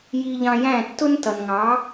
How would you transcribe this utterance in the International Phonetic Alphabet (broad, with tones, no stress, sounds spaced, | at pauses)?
j i˧ ʎ ɑ̃˧ j æ̃˥˩ tː ʊ˥ n t ʌ˩ n ŋ ɑ˩˥